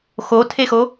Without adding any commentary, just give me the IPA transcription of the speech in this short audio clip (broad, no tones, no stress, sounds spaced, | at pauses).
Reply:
x o tʰ e x o